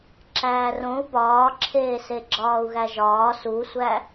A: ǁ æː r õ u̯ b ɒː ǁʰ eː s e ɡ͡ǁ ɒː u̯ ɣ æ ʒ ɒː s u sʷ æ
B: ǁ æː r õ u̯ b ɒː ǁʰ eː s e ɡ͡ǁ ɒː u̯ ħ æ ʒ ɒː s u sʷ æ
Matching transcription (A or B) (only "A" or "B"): A